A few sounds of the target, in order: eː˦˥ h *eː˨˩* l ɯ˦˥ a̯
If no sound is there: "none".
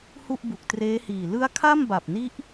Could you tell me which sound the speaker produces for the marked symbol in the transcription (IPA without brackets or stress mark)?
iː˨˩